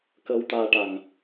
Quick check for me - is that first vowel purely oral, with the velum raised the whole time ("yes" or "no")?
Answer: yes